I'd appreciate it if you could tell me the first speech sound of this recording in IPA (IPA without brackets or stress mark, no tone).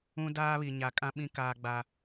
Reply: ũ